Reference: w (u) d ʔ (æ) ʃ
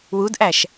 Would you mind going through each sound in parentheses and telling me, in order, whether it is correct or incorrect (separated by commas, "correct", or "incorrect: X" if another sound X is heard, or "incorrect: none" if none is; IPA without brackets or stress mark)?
correct, correct